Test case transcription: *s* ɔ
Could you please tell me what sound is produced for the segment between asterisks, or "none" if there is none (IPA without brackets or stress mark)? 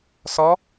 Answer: s